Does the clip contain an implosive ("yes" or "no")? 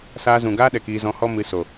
yes